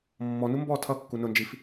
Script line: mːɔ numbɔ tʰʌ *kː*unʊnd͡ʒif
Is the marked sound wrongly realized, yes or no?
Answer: no